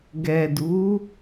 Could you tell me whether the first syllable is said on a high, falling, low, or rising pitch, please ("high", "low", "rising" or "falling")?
low